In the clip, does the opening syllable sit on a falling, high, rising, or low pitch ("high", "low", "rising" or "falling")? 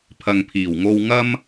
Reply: low